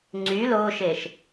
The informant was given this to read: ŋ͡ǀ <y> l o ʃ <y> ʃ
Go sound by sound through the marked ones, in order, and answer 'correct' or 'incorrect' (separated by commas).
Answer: correct, incorrect